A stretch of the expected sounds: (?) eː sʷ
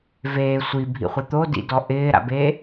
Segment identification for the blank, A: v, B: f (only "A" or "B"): A